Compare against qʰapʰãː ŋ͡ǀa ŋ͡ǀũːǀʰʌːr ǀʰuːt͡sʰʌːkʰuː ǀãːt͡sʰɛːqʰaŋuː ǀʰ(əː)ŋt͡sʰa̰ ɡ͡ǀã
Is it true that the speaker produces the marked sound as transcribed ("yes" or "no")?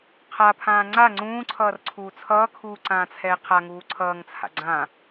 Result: no